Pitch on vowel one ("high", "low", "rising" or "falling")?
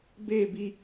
falling